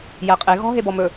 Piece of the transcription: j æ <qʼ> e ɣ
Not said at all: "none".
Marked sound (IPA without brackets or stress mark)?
qʼ